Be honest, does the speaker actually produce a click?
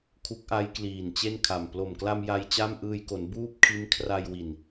no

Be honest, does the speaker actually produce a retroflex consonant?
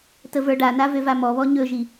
yes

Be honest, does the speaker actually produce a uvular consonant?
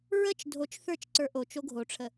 no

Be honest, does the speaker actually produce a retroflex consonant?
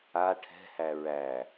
yes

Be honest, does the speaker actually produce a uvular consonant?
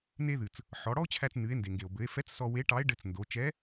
no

